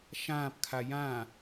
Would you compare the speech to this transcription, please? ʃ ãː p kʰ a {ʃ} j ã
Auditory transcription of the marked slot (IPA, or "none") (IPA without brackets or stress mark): none